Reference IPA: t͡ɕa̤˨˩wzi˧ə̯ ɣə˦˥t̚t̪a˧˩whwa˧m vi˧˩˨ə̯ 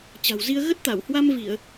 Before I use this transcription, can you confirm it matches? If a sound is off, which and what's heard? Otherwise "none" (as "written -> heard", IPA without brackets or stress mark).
none